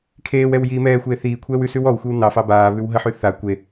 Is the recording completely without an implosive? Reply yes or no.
yes